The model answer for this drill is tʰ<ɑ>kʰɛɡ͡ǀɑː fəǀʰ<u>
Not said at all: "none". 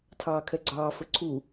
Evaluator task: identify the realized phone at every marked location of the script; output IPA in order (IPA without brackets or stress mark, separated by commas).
ɑː, u